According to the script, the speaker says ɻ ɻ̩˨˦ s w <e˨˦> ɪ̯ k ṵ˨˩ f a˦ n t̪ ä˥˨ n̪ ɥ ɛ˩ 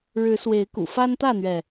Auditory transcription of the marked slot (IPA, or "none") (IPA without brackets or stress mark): e˨˦